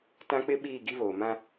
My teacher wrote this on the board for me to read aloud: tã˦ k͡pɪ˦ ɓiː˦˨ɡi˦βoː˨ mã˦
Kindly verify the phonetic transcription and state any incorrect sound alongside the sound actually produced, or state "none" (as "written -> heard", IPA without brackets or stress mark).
none